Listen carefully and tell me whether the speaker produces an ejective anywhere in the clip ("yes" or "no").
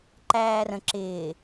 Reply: no